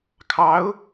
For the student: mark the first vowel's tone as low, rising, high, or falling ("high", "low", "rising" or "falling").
rising